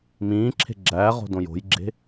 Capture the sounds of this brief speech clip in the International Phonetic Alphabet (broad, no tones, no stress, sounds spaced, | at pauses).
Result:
m ĩː ǁʰ e̤ ɡ͡ǁ æː ʁ o̤ d õ j o̤ j ɡ͡ǁ e̤